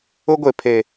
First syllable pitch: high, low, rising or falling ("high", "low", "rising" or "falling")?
high